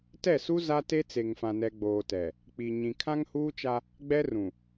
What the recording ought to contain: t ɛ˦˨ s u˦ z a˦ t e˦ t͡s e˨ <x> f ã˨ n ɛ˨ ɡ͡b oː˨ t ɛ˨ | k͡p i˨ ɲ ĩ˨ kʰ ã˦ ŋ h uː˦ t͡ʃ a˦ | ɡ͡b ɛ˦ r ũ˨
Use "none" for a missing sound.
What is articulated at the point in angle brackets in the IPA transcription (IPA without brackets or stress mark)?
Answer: ŋ